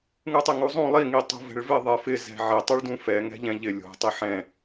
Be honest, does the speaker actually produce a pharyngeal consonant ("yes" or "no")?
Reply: yes